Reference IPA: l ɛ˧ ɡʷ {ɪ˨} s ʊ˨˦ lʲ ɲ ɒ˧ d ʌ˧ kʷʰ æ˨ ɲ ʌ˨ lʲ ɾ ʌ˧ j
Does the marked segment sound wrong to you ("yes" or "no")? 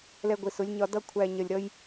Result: no